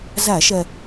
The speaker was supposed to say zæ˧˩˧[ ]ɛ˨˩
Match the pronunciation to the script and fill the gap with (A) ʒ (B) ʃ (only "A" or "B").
B